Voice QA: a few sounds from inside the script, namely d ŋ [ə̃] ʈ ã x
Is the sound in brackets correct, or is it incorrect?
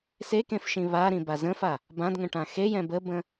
correct